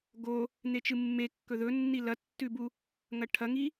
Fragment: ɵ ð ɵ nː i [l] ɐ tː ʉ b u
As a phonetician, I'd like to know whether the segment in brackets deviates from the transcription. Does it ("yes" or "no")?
no